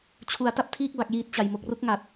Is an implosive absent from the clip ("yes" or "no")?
yes